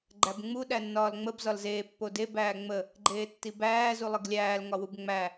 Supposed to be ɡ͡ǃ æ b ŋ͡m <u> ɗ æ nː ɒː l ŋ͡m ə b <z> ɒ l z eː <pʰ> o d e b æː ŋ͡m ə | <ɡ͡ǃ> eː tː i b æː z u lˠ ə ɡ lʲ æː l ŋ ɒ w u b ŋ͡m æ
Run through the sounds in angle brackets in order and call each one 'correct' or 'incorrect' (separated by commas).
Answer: correct, correct, incorrect, correct